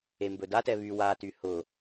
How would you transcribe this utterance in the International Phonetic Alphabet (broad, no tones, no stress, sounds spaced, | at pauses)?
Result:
e m b ɵ d a t ɛ β y w a t y h ʊ